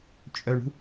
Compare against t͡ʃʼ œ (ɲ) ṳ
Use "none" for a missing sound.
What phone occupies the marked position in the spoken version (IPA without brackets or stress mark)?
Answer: ɳ